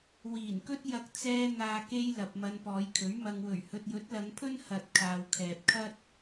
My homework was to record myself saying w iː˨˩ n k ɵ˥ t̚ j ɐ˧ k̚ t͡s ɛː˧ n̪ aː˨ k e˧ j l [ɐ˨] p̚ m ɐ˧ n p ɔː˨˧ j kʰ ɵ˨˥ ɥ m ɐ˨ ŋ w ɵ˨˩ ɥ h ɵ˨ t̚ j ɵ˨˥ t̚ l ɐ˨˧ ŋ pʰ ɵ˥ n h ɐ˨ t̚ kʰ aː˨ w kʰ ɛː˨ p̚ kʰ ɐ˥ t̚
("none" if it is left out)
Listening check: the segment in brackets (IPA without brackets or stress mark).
ɐ˨